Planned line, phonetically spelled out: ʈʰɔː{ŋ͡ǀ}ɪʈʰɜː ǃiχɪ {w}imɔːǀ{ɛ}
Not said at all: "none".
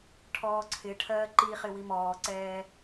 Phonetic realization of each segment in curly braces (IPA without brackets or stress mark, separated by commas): ǀʰ, w, ɛː